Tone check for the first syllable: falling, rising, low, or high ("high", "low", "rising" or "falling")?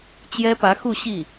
high